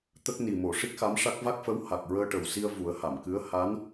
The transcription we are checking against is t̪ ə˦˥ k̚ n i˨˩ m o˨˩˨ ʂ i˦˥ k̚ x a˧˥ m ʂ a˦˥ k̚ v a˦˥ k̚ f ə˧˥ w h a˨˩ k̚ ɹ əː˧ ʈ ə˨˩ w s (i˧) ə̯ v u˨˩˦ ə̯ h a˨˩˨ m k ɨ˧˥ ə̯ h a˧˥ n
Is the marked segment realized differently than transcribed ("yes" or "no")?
no